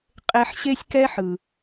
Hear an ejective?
yes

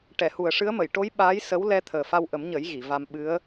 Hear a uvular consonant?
no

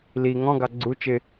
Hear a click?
yes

